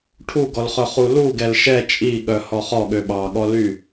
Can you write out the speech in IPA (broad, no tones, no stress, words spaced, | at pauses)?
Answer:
ʈʰuɡɔlχœχu luɡɛl ʃɛ t͡ʃʼiɠœ hɔχɔ ɠøɓɑɠɔly